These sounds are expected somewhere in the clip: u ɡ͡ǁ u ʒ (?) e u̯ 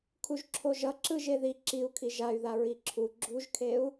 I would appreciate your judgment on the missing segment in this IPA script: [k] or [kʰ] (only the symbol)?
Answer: kʰ